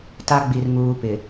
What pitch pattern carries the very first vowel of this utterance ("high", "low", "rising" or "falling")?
high